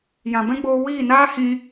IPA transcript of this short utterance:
j ã˨ b ɛ̃˦ ɡ͡b oː˧ w iː˦˨ n aː˦ h ĩ˦

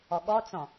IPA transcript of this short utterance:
ɔ ɠ ɔ t͡s ɔ̃

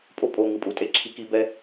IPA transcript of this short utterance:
pʼ o˦ pʼ o˨ ŋ ɯ˨ pʼ u˨ tʼ e˦ ǁʰ i˦ k i˦ b ɛ˦

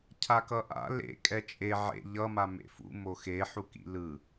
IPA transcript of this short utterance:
cʰ a k ʌ ʔ a̰ l ḛ kʼ ɛ t͡ʃʼ e ʕ ḛ ʎ ʌ m a m ḛ f ṵ m o x e ħ u k ḭ l ɯ

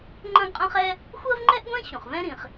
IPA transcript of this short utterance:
ŋ͡ǃ ɐ̃˥ ɡ qʼ ɐ̃˥ χ ɛ˥ | xʷ ɜ˥ v ŋ͡ǃ ɛ˥ ʔ ɡʷ ɛ̃˥ ɕ ũ˩ χ v ɛ̃˥ ɾ ĩ˩ χ

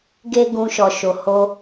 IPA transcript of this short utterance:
ɡ e˦ ɡ ũ˧ ʃ ɔ˨ ʃ o˨ h o˧

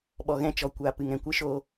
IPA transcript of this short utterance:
ɓ ɔ˨ ɣ ɛ̃˦˨ t͡ʃ ɔ˨ kʷ a˨ p ɨ˨ ŋ ɛ̃˨ kʷ ɨ˦ ʃ oː˧

